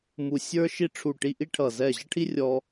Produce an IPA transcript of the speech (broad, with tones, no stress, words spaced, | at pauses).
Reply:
mu˧˩sʲə˞˦ʃi˦ ʈ͡ʂʰu˧˩ʈi˦ʔi˦ʈʰʌ˧˩ zɛ˧˩ʑʌ˦ʈʰi˦ rʲɔ˦